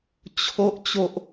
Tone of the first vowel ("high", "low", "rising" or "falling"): high